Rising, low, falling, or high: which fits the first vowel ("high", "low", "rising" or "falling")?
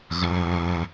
high